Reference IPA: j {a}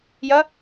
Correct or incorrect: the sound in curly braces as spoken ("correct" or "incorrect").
incorrect